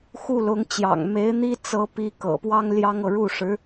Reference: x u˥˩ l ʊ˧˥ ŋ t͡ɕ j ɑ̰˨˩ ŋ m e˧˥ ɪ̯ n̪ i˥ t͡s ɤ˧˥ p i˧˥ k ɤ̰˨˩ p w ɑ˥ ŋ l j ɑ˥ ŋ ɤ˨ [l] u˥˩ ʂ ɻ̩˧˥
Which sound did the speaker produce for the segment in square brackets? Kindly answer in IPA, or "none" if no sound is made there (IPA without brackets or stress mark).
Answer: ɻ